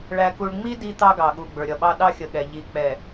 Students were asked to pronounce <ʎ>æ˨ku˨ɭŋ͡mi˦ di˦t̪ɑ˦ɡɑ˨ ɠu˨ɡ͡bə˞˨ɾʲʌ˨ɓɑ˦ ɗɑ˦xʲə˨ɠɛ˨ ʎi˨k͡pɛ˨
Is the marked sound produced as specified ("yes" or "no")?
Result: no